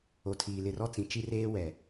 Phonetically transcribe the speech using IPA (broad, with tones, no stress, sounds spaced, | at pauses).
o˨ tʰ iː˨ l ɪ˨ r ɔ˦ t͡s ĩ˨ t͡ʃ i˦ r eː˦ w ɛ˨